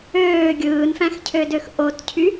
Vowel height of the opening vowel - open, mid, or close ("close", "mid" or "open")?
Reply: mid